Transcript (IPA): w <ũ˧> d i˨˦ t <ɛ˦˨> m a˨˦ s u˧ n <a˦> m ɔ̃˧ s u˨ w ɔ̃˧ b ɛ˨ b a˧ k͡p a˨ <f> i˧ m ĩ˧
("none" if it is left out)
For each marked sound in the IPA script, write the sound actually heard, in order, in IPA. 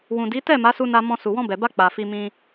ũ˨, ɛ˦˨, a˧, f

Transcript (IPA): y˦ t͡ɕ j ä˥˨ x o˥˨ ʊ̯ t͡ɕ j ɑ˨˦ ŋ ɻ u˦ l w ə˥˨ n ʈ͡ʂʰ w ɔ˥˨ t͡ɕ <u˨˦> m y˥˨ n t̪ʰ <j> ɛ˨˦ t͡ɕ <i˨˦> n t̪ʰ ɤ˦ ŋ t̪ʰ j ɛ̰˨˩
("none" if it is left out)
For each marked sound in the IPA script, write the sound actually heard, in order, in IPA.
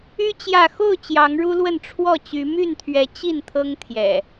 y˨˦, ɥ, i˥˨

